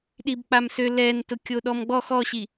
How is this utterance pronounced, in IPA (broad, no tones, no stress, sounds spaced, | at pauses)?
ɗ i b k͡p a m s ø l ɛ n t ʊ kʲ o ɗ ɔ m ɡ͡b ɔ x ɔ ɕ i